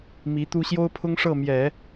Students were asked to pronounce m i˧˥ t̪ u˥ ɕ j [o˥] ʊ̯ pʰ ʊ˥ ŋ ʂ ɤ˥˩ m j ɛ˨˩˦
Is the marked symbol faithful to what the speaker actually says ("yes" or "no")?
yes